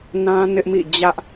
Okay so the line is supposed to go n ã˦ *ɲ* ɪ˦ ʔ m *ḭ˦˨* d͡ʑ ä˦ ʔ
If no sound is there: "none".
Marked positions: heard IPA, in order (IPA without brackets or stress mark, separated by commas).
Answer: n, ḭ˦˨